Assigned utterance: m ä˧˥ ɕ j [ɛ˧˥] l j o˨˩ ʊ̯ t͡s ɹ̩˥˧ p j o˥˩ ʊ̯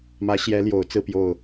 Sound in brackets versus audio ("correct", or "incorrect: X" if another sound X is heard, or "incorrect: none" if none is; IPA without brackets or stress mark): correct